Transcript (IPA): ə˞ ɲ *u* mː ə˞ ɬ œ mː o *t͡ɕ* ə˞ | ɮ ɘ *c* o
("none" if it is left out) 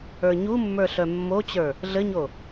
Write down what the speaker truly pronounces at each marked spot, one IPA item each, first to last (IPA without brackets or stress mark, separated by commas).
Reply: u, t͡ɕ, ɲ